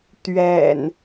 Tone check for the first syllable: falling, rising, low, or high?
low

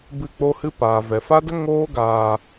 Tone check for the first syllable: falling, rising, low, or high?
falling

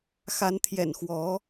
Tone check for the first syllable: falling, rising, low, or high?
rising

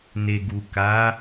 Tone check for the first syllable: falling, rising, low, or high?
low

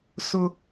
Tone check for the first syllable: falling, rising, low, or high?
high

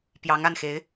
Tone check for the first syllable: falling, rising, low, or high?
rising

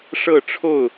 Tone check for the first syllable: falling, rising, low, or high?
falling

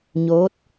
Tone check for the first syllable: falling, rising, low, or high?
rising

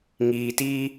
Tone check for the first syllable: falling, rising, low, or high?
low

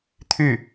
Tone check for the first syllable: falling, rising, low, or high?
falling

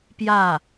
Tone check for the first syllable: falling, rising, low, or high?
falling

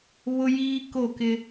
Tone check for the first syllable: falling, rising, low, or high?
high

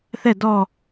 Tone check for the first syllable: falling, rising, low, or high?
falling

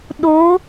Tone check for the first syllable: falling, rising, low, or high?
rising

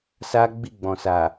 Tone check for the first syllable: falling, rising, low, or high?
high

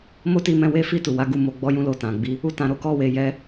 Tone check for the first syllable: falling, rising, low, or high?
high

